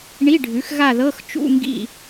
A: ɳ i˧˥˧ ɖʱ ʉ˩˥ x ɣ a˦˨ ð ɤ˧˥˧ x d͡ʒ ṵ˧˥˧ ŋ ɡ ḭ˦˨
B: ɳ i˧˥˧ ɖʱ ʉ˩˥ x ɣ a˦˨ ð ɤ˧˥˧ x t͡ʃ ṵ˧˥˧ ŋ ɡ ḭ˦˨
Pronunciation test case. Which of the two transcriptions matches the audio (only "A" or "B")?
B